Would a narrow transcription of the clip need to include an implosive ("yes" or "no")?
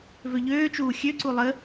no